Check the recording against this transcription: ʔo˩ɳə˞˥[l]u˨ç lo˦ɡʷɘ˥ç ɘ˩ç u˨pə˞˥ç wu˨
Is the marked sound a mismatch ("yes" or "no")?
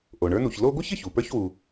yes